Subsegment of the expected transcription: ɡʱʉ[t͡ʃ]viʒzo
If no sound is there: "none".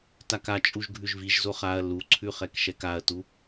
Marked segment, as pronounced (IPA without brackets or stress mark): ʒ